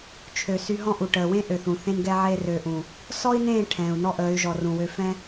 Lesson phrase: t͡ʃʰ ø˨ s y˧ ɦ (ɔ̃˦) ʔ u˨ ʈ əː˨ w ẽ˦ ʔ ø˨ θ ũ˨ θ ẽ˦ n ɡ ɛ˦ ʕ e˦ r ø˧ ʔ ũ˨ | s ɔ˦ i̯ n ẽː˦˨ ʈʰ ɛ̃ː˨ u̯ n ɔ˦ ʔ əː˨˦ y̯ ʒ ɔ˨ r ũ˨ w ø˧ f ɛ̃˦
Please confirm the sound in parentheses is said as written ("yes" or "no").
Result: yes